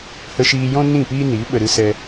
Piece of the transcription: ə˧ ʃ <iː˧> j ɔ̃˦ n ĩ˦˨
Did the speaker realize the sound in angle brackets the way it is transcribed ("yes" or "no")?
yes